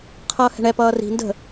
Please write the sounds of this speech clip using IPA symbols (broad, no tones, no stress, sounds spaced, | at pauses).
qʰ ʌː h ɛ̤ ɳ ɛ p ʌː r i̤ n d ə̤